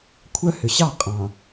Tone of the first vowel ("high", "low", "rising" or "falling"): high